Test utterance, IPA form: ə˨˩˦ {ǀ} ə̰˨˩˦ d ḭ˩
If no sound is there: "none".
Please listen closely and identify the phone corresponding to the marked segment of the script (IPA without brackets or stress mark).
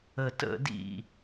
t